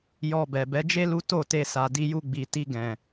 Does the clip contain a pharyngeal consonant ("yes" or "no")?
no